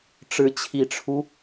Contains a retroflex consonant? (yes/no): yes